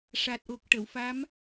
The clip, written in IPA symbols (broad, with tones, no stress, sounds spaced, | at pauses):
ʂ a˨˩ t̚ ʔ o˨˩ k̚ ʈ ə˨˩˨ w f a˧˥ m